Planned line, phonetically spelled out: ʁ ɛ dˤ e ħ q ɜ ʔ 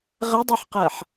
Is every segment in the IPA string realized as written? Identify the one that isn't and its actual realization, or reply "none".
ʔ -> ħ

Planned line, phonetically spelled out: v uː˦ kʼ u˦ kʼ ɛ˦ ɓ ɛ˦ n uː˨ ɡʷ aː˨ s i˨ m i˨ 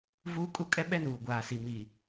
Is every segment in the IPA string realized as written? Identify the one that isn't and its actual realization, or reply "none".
none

